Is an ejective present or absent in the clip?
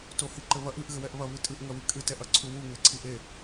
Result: present